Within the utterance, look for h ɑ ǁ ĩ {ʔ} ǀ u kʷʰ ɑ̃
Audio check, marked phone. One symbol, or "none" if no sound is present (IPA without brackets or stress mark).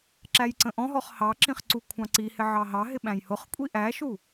χ